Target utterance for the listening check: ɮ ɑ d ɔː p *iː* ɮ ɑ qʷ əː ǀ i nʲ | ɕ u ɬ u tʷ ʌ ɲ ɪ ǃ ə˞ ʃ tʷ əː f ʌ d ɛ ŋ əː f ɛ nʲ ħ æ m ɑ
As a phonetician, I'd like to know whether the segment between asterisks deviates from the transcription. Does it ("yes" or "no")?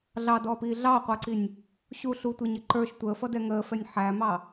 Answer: no